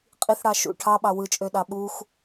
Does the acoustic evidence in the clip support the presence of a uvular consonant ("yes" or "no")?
yes